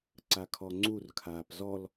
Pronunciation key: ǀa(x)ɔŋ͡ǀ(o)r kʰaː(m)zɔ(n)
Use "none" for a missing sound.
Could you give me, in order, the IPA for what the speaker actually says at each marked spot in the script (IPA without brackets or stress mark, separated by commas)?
kʰ, u, p, l